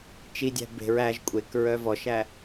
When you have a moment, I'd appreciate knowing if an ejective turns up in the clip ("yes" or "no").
yes